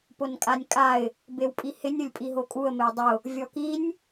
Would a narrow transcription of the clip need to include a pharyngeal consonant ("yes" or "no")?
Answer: no